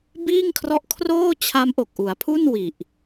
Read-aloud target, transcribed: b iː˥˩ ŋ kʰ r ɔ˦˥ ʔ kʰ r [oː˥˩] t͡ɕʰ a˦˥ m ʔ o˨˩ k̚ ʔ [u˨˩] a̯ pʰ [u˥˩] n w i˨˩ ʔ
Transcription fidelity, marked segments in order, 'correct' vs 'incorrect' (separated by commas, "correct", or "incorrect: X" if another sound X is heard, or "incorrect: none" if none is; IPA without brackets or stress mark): correct, incorrect: u˩˦, correct